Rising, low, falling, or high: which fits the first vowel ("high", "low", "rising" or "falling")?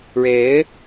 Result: rising